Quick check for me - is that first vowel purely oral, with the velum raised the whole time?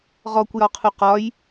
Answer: yes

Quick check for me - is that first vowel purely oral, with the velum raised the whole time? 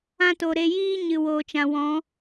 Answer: no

